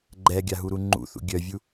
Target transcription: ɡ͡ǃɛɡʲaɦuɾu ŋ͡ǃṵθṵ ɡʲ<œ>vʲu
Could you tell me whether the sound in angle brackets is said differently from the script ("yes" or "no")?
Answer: no